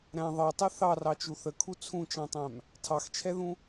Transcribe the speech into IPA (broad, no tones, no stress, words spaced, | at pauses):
ɾæ̃ ðˤɜtˤɛ θɑrɑt͡ʃu θəkʰu t͡sʰũt͡ʃɑ̃tˤæ̃m | tʰɑxt͡ʃʰɛðũ